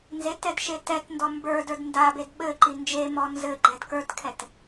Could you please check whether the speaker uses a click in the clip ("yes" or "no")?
yes